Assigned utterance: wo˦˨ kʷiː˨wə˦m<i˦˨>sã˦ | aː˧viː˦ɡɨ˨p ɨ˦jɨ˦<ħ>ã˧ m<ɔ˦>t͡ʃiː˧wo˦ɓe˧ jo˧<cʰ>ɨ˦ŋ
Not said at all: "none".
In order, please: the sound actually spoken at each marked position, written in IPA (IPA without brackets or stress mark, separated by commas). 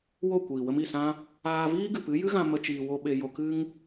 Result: i˦˨, ɣ, ə˦, k